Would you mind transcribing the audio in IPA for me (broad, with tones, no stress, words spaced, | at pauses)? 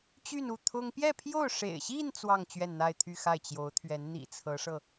t͡ɕy˥˧nu˥˩ t̪ʰʊ˥ŋ pjɛ˥˧pʰjo˥˩ʊ̯ ʂḛ˨˩ɪ̯ɕi˥˧n t͡swɑ˥˧ŋ t͡ɕɥɛ˥˧nn̪a˥˧ɪ̯t̪ʰy˥˧xa˥˩ɪ̯ t͡ɕjo˧˥ʊ̯t̪ʰɥɛ˧˥n n̪ḭ˨˩t͡sʰɤ˧˥ʂɤ˧